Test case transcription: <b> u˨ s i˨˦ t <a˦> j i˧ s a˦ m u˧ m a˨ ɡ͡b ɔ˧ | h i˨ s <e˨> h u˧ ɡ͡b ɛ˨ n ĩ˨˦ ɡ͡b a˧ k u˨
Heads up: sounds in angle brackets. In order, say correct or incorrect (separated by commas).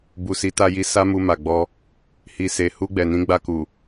correct, incorrect, correct